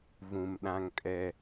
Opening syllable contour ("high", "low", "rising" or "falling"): low